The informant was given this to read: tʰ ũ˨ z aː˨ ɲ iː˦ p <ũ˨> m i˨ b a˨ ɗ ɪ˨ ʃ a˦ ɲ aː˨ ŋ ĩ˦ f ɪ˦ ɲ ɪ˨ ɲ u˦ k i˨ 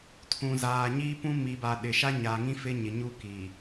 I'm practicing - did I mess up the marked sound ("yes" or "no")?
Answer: yes